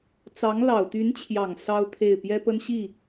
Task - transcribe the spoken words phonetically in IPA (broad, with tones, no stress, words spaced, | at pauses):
t͡sɑ˧˥ŋ lɑ˨˩ʊ̯t̪y˧˥nt͡ɕʰjɑ˨˩ŋ sɑ˥ʊ̯ t̪ʰe˥˩ɪ̯ pjɛ˥pə˥nɕi˥˩